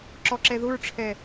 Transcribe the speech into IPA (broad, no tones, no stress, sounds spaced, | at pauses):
ǁ ɔ ǁ ɛ ð ʊ ɹ ʈ͡ʂʰ ɛ